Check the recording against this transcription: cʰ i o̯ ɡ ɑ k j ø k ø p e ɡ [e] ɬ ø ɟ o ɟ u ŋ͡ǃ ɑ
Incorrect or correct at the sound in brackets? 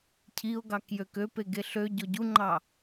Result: correct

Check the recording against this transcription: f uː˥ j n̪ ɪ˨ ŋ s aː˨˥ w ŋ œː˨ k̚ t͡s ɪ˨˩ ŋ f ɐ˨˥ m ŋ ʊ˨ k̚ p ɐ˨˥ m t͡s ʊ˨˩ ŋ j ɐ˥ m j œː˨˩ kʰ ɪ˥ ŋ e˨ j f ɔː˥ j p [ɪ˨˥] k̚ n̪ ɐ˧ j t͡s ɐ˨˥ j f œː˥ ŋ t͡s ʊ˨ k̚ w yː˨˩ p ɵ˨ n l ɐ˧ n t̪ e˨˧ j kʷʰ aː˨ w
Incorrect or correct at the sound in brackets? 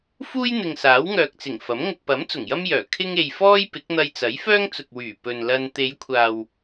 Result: correct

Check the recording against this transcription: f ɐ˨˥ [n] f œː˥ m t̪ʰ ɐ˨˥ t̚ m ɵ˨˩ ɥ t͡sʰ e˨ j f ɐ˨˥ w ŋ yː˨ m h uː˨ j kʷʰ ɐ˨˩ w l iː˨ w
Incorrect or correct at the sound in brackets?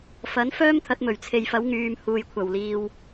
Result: correct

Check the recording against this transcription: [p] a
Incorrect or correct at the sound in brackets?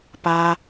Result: correct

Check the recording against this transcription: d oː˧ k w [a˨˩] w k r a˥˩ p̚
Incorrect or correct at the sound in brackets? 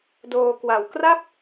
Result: correct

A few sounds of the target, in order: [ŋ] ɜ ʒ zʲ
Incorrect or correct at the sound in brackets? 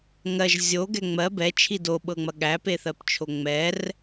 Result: correct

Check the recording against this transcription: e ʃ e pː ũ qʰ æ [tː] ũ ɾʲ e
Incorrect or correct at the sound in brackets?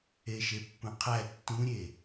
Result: correct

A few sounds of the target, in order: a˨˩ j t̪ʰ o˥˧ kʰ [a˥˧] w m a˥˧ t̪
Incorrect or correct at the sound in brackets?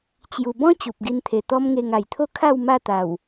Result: correct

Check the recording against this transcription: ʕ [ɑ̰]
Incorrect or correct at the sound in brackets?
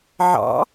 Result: correct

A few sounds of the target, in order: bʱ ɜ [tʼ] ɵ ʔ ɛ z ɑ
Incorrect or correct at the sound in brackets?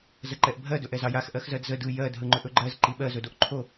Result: incorrect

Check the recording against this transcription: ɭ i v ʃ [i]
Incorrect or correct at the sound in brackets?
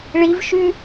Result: incorrect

